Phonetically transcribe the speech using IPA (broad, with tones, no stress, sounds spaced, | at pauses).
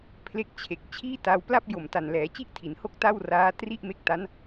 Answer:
pʰ l e˦˥ k̚ t͡ɕʰ e˨˩ k̚ t͡ɕʰ iː˥˩ t a˧ w p l a˥˩ p̚ j o˨˩ m t a˨˩ n l ɛː˩˦ t͡ɕ i˥˩ ʔ tʰ i˩˦ n h o˥˩ k̚ t a˥˩ w r aː˦˥ t r i˥˩ ʔ m e˦˥ k̚ t a˦˥ n